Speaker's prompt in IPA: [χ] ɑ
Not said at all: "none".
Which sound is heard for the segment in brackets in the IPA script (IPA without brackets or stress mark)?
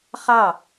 χ